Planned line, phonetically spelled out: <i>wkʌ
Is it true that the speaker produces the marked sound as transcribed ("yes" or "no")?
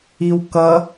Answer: yes